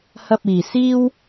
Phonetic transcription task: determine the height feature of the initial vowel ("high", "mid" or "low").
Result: low